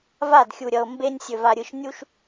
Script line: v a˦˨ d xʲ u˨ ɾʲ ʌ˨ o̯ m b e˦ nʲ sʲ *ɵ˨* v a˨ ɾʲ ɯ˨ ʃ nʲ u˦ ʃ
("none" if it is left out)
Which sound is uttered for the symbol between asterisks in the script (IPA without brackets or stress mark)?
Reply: ɵ˨